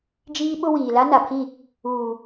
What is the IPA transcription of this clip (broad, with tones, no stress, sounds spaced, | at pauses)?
d͡ʒ iː˦ ɓ ʊ˦ w iː˨ l a˦ n a˨ pʰ i˦˨ | uː˨